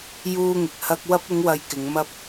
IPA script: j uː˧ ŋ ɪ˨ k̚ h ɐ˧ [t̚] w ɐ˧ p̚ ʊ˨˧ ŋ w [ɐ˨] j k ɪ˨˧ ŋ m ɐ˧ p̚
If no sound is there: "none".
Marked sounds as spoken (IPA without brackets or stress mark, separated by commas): k̚, ɐ˧